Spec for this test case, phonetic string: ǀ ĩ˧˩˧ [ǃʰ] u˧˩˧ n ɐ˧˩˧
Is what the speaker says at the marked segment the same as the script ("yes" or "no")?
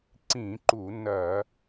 no